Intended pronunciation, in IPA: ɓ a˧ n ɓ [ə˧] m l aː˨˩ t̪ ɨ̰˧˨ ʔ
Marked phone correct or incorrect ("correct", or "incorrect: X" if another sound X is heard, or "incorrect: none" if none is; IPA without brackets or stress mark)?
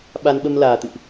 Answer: correct